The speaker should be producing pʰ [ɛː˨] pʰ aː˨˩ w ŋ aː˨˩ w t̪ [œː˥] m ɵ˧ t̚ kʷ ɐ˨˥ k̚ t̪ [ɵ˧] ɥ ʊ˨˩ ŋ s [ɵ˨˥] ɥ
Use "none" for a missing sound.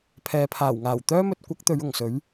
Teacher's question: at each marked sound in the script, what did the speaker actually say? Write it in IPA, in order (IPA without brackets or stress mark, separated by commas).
ɛː˨, œː˥, ɵ˨˧, ɵ˨˥